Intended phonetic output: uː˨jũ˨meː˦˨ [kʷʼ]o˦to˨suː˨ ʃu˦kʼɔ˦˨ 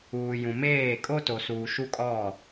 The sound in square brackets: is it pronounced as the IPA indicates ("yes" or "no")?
no